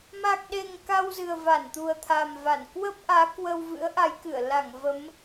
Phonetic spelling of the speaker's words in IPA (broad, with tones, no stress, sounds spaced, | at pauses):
m a˨˩ k̚ ɗ e˨˩ ŋ k a˧ w z ɨ˨˩ ə̯ v a˧˩ n t̪ u˨˩ ə̯ t̪ʰ a˨˩ m v a˧˩ n k w ə˦˥ p̚ ʔ aː˨˦ k w ə˧ w v ɨ̰˧˥ ə̯ ʔ a˨˦ j k ɨ˧˩ ə̯ l a˧˩ ŋ v ə˨˦ m